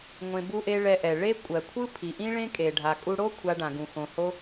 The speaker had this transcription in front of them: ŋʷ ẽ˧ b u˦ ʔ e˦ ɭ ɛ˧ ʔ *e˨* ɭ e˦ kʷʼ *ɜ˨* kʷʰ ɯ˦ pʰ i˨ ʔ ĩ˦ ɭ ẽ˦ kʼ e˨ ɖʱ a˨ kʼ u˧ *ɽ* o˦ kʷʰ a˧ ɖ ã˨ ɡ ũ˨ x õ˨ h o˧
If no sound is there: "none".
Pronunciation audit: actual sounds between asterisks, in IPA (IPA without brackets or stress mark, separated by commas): ɛ˨, ɜ˨, ɽ